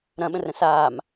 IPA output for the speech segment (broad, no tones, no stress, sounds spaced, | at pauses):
ɾ ɐ̃ ɓ ə̃ r ə̃ s aː m